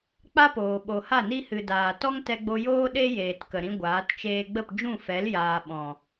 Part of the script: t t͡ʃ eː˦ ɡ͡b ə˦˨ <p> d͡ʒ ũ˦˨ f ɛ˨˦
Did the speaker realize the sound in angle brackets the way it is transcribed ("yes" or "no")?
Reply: yes